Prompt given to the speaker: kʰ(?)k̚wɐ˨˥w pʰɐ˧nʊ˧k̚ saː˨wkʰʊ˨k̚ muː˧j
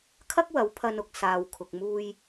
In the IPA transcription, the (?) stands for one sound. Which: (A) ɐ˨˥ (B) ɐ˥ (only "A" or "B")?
B